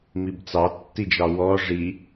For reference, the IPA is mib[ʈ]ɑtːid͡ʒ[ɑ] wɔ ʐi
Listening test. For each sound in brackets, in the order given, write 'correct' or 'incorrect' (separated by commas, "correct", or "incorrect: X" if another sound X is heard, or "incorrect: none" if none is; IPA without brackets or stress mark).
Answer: incorrect: t͡s, correct